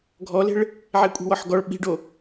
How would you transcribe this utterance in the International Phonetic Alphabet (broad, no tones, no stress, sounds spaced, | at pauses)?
ɡʱ ɔ l e̤ ɭ | ʕ e kʷʼ i̤ w ɔ ħ ɡ ɔ ɭ ɓ i̤ ɖ o